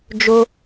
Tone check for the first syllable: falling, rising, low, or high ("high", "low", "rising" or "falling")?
high